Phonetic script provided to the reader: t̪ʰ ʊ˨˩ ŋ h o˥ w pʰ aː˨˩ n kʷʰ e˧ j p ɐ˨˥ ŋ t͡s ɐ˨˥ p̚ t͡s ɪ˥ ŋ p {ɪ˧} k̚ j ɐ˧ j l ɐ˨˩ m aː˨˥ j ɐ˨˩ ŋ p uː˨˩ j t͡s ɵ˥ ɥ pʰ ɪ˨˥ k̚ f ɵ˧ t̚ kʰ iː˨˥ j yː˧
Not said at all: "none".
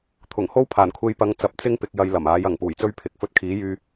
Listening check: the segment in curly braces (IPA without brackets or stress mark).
ɪ˧